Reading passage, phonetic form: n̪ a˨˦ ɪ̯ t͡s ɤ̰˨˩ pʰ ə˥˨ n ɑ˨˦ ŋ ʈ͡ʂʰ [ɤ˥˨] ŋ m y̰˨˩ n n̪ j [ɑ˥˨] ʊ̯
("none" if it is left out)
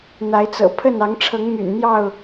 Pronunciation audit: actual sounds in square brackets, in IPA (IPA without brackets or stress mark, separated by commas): ɤ˨˦, ɑ˥˨